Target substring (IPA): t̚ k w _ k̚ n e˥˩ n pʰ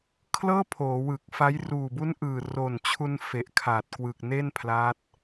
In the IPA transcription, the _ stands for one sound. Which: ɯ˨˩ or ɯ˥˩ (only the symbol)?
ɯ˨˩